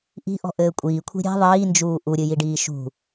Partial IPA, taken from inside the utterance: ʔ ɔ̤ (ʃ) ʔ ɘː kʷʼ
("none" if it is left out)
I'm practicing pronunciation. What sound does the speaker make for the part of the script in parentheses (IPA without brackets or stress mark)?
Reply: none